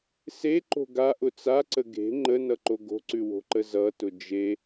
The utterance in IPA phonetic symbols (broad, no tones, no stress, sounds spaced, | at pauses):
s e ǃ o̤ ɡ a ʔ ʊ t͡s a ǀ ə ɡ e̤ ŋ͡ǃ ə n ʌ ǃ o ɡ o̤ ǀ ʉ w o̤ ǃ ə z ʌ t ʊ d͡ʒ e